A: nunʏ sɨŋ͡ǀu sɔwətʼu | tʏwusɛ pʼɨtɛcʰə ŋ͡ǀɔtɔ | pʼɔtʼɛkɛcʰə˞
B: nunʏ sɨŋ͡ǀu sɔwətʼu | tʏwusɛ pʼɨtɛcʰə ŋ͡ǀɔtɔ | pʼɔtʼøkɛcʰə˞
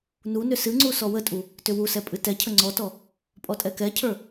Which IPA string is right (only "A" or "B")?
A